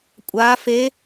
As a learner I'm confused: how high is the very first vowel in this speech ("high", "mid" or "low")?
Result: low